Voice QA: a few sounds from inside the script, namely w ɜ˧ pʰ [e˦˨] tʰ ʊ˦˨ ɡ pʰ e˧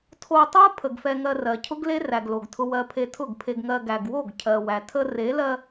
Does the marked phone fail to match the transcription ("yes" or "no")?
yes